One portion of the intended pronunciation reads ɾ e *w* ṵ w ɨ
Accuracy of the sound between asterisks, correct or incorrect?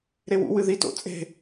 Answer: correct